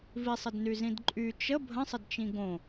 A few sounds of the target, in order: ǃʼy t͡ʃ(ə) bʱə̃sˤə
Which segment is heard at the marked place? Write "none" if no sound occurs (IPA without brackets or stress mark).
ə